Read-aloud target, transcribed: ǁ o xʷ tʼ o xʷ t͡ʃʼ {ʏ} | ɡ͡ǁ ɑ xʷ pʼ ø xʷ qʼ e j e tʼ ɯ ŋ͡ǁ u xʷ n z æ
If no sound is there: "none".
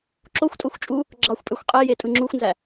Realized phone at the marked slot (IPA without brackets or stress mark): u